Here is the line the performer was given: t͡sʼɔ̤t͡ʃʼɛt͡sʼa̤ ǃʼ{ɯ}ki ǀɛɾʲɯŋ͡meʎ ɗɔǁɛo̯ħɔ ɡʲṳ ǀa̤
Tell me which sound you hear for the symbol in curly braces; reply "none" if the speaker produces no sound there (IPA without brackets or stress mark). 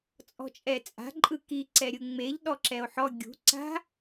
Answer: ɯ